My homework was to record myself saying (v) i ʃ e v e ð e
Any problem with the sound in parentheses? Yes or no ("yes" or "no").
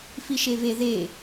yes